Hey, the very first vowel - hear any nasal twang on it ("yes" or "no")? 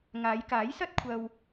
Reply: no